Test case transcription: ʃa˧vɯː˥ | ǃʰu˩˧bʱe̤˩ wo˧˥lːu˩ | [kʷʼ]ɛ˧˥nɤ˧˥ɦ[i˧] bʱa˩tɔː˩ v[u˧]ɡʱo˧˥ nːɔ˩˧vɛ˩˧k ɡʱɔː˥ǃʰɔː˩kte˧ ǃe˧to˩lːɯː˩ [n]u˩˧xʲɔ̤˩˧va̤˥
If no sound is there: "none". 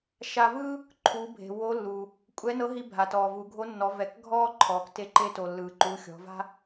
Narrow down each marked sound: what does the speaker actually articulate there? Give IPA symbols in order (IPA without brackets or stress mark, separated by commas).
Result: kʷʼ, i˧, u˩˧, ǃ